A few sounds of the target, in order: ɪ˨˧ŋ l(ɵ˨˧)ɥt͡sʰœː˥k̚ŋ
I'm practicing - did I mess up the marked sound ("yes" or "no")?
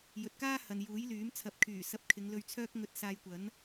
yes